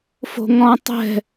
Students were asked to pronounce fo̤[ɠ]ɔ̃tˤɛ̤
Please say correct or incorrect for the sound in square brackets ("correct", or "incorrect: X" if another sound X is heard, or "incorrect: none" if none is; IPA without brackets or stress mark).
incorrect: ŋ